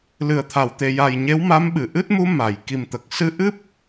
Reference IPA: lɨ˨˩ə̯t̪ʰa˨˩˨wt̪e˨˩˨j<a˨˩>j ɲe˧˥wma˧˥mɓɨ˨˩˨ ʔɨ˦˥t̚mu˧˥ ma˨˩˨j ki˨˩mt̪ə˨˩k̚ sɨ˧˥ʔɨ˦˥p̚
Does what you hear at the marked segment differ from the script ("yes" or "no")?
no